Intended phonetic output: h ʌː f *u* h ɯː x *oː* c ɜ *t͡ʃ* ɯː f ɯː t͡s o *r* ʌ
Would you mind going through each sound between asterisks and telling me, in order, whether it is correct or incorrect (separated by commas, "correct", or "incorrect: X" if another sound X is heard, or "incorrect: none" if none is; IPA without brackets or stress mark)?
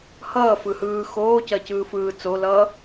incorrect: ɯ, correct, incorrect: c, incorrect: l